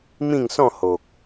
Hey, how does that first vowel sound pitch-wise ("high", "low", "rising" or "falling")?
falling